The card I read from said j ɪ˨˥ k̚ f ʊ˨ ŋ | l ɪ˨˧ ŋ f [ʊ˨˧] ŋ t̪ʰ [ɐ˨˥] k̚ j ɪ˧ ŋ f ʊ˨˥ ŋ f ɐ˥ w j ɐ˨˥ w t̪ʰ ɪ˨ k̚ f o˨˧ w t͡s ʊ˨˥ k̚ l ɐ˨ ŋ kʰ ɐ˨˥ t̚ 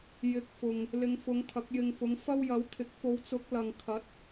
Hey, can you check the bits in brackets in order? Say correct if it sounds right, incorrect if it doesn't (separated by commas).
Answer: correct, correct